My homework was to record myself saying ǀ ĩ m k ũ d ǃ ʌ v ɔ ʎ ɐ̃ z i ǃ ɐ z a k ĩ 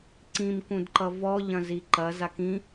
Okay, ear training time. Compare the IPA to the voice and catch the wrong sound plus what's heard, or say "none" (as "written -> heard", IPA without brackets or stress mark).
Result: none